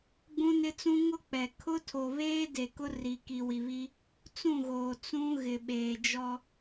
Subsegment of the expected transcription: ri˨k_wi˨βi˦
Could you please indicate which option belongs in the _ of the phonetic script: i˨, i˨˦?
i˨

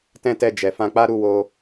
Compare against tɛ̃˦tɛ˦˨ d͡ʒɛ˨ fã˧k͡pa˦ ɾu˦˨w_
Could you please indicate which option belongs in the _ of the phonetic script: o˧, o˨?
o˧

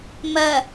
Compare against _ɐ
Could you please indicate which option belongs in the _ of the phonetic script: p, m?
m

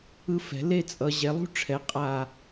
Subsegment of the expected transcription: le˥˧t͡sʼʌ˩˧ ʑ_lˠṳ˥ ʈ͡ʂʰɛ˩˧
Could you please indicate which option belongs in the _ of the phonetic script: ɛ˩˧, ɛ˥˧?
ɛ˩˧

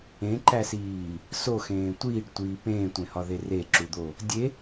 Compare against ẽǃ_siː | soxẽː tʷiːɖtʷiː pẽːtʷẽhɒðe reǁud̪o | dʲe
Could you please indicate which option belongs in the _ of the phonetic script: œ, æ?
æ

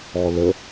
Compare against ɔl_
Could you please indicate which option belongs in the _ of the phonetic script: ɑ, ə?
ə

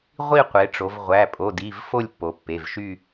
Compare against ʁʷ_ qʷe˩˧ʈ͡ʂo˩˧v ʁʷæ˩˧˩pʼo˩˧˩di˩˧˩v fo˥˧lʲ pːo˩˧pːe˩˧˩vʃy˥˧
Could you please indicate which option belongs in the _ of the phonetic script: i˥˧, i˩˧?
i˥˧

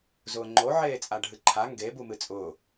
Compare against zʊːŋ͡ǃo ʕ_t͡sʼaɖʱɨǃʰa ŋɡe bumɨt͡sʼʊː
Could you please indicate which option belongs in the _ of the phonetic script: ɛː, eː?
eː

